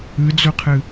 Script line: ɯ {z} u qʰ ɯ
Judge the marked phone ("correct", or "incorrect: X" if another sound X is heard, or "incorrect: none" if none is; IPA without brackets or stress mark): incorrect: d͡z